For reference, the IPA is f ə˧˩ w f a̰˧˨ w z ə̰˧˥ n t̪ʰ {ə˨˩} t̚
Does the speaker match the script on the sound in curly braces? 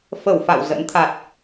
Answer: no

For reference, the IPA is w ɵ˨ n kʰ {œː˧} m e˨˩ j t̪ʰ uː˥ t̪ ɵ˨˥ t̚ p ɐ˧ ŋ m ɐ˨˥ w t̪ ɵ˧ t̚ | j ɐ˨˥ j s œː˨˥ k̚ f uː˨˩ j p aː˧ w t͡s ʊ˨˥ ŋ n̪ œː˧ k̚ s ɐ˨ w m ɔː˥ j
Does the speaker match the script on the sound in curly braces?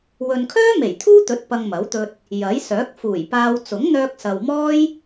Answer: no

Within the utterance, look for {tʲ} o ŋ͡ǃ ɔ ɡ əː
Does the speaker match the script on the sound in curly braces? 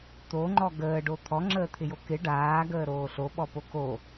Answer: no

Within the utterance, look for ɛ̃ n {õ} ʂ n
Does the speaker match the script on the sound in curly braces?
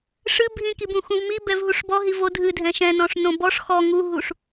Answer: no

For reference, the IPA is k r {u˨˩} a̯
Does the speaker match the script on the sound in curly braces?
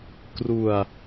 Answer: yes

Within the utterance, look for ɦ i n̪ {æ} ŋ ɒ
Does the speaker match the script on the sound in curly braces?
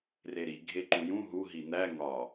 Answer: yes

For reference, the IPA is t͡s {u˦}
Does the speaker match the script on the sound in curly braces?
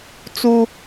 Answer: yes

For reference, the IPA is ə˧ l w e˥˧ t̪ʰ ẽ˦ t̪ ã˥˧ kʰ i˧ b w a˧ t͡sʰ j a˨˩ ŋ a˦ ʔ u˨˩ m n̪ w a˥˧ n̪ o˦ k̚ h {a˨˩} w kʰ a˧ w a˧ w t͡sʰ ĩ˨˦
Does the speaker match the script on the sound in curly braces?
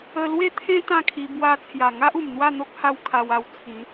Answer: no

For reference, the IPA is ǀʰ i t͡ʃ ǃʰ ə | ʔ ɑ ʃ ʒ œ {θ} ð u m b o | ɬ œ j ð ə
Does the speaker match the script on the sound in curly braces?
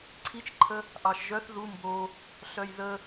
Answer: yes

